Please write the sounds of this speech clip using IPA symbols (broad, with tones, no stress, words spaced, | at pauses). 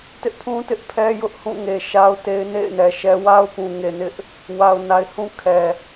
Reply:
tɪ˦ʔpʰũ˦ tɪ˦ʔpʰɛ˦ jʊ˦ʔhũ˦˨ ŋe˨ ʃa˦ʊ̯te˦ɪ̯ nḛ˦˨ɪ̯nɛ˨ʃɛ˦ wa˦ʊ̯pũ˨ŋe˨nɪ˦ʔ | wa˨ʊ̯na˨ɪ̯hũ˦ kʰɛ˨